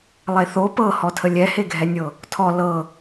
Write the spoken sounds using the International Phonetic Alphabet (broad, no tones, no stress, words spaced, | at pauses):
lˠeθo pɤhɔtʰə lʲɛheɡʱɛnʲɤ | tʰɔ lɤ